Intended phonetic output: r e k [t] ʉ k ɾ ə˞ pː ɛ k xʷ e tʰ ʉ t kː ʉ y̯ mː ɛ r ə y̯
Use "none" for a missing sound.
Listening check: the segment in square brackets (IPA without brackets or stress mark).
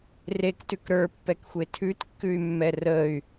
t